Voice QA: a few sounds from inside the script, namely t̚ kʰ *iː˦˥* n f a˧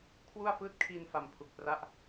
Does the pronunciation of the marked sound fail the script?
yes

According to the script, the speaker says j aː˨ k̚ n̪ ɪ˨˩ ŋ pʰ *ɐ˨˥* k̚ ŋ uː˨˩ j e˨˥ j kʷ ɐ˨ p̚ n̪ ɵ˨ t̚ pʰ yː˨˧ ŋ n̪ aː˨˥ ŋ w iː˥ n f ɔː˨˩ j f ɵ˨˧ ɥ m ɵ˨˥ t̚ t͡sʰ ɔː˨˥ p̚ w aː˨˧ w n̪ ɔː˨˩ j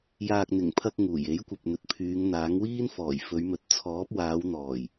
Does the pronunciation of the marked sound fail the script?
yes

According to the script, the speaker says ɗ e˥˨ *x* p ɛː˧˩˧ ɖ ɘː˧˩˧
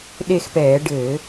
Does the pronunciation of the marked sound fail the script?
no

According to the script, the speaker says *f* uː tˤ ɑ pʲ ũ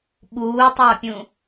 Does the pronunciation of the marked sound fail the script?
yes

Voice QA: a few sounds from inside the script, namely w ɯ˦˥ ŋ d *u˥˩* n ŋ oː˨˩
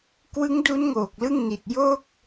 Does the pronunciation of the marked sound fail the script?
yes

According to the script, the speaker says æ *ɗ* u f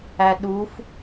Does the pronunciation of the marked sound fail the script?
no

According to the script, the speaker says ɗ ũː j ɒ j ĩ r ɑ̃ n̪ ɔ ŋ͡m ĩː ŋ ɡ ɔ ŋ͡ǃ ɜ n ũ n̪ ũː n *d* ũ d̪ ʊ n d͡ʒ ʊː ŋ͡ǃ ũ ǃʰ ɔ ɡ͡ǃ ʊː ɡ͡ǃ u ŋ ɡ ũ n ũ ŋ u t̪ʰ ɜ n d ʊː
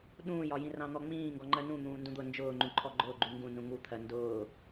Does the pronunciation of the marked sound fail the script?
no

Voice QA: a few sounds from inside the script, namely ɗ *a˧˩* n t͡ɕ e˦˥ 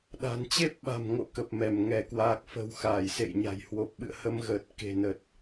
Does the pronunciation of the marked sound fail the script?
yes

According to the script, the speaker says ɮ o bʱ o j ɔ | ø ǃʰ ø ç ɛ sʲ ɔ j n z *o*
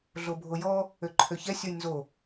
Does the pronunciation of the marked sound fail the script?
no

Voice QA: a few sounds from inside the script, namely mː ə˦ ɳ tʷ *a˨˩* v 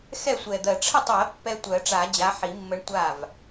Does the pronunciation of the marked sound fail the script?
yes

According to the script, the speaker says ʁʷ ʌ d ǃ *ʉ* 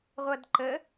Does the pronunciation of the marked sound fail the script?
yes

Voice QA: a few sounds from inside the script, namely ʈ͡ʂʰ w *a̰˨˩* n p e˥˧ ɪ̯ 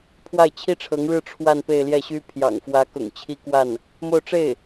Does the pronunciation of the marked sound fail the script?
yes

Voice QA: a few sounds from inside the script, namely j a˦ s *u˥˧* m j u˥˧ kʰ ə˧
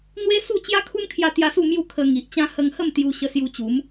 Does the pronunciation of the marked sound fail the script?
no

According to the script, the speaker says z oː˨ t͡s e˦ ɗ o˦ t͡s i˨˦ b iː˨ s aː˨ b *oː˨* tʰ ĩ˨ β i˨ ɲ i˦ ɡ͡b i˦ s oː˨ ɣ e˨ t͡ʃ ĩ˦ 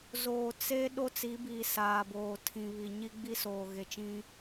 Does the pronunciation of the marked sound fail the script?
no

